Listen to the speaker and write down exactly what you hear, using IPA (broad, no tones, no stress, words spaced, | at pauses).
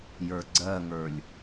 jə˞ɡ͡ǀɜŋə˞lʲ